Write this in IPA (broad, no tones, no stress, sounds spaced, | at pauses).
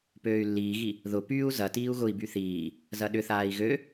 p øː y̯ lː iː ɣ i | ð ʊ p yː u̯ z ɐ t iː u̯ ɣ ʊ i̯ b y θ iː | z ɐ ɗ ʏ θ aː i̯ ɣ ø